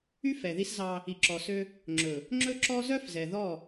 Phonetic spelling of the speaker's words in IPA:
y˦ f ɛ˨ ð i˦ s z ɑ˦ | i˨ ǁ ɔ˨ s ø˦ | ŋ͡ǁ ɵ˨ | ŋ͡ǁ ɵ˦ ǁ ɔ˦ z œ˦ f z ɛ˨ ð ɔ˦˨

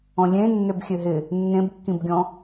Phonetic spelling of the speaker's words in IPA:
ɔ̃ lʲ ẽ nː ø b xʲ ø ɦ ɪ | nː ẽ b kː ĩ b ɡʲ ɔ̃

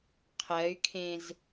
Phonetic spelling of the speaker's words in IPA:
qʰ ɜ y̯ kʰ ẽ z

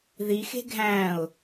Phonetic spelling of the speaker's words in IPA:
ð i x e̤ ɡʱ æ̃ ʊ̯

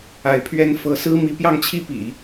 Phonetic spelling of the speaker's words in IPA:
a˧˥ ɪ̯ pʰ ɥ ɛ˥ n f ɤ˧˥ s ɹ̩˥ m i˧˥ p j ɑ˥˧ ŋ t͡ɕʰ i˥˩ p ḭ˨˩˦

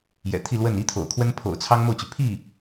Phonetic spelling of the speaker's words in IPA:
j ɛ̰˨˩ t̪ʰ i˥˧ l w ə˥˩ n i˥ t̪ʰ o̰˨˩ ʊ̯ kʰ w ə˥ n pʰ o̰˨˩ ʊ̯ t͡sʰ ɑ˥ ŋ m o˥˩ ʊ̯ t͡ɕ y˩ pʰ i˥˩

